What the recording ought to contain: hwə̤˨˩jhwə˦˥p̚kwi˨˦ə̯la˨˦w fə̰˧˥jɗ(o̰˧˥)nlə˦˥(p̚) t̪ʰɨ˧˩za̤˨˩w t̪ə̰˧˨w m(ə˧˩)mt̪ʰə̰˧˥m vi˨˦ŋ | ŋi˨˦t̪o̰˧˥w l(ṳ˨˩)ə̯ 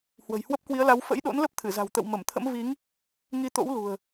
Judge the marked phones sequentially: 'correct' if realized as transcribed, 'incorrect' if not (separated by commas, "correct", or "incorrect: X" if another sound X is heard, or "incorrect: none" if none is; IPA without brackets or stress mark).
correct, correct, correct, correct